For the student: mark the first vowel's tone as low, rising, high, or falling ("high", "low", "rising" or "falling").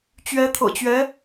rising